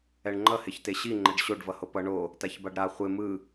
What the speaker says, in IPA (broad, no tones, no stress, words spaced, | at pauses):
ɛɳŋ͡ǃʌ heçteɕi ŋ͡ǃɛɖɕoɖ vʌhopʌ ɳo | taçbaɖɾa χʷe mɯ